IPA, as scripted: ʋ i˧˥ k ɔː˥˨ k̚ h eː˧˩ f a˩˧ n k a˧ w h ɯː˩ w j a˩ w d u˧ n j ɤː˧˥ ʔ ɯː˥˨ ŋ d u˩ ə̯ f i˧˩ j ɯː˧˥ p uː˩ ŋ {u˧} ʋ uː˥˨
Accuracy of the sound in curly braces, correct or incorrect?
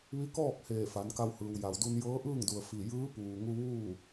correct